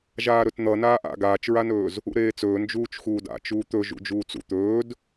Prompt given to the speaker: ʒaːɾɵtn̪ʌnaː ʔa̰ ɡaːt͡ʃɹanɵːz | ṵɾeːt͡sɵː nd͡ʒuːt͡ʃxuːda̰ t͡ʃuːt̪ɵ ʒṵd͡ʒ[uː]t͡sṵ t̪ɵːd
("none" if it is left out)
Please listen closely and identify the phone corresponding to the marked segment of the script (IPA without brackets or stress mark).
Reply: uː